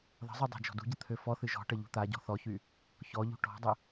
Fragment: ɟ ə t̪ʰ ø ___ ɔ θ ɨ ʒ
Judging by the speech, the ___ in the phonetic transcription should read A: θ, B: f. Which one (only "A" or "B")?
B